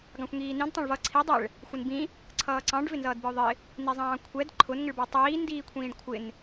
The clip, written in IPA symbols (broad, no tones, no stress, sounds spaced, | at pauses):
ɡ ɑ̃ xʷ ŋ iː n ĩ d tˤ ɑ̃ ɭ v ʌ ǀʰ i dˤ ɛ ɭ | xʷ ɪ n b ĩ | ǀʰ ʌː ǀ ɑ̃ ɖ v ɪ n z ʌː d b ɪ ʊ̯ ðˤ ɪ | n i zˤ ɑ̃ː kʷʰ ɛ d ǃʰ ʊ n ŋ ɪ ɭ b ɑ tˤ iː n d iː kʷʰ ĩː ɖ kʷʰ ɪ n